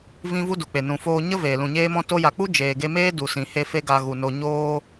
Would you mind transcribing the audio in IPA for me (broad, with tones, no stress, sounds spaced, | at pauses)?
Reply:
v ĩ˦ v u˦ d u˨ k͡p e˨ n ũ˨ f oː˧ ɲ ə˦ v eː˨ l ũ˨ ɲ eː˦ m ɔ̃˦ t o˧ j a˨ k͡p u˦ d͡ʒ eː˨ ɡ e˧ m eː˦ d u˨ s ĩ˨ h e˧ f e˦ ɡ a˧ ɣ u˨ n o˧ ɲ oː˦